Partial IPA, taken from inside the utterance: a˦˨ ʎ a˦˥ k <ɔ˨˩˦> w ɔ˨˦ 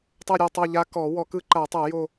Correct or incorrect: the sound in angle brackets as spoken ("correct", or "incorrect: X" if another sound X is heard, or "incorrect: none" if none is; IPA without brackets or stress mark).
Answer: correct